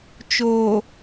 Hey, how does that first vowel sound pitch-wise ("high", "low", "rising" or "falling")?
low